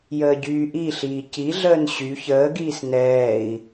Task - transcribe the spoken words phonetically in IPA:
j əː ɟ yː ʔ i ɬ iː c i ɮ əː n ɕ y ç əː ɡ iː s n ɛː i̯

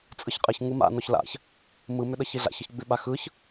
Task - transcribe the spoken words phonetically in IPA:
t͡sʼ ɯ ç qʼ ɪ ç ŋ ɯ m a̰ n ɔ ç l a̰ ç | m ɯ m ʏ ɗ ə ç i ɮ a̰ ç ə ç ɡ͡b ʉ ɓ a x ɯ ç

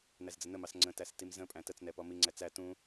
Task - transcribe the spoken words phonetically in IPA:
n æ z d͡z ə n ə m ɑ s ŋ͡ǀ ə̃ t æ s t i m z ə̃ pʼ æ̃ t ə t͡s n ɛ p ɔ m i ŋ͡ǀ æ t͡s æ t ũ

